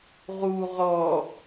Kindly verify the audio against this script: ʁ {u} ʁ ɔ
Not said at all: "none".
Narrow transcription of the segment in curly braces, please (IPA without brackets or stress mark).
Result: u